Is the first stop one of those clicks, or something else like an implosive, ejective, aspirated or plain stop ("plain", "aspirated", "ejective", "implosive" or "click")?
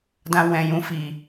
plain